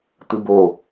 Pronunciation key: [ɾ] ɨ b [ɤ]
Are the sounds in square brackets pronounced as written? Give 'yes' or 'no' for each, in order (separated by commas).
no, no